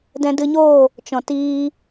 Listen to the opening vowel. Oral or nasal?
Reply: nasal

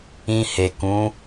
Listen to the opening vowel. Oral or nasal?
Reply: nasal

